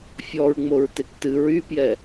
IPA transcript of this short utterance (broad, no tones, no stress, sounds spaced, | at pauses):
fʲ ɔ ɹ ŋ͡m o ɹ t e k t ɨ ɹ y p j ɛ